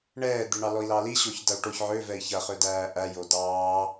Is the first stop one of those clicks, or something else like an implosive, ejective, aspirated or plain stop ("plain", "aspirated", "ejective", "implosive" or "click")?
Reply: plain